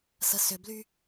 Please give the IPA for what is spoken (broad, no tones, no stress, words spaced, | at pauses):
səsʏbly